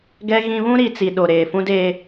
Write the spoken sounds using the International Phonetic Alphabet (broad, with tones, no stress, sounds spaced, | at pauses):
ɡ ɛ˦ ɣ ĩ˦ β ũ˦ ɾ i˨ t͡s i˨ ɗ o˨ ɾ eː˨ f ũ˦ d eː˦